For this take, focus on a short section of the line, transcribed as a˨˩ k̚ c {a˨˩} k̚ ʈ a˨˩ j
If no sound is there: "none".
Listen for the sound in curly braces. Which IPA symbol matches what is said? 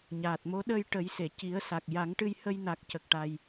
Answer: ə˨˩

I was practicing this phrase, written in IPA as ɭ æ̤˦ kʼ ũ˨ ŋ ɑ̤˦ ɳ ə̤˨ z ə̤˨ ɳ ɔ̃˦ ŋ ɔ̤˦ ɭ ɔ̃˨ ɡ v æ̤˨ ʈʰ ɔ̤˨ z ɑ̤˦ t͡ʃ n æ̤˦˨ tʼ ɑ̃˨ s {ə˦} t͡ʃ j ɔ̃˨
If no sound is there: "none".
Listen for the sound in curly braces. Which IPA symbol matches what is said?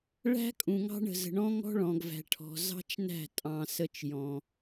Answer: ə˦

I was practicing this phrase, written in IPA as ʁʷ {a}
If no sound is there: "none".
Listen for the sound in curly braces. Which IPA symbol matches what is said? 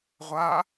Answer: a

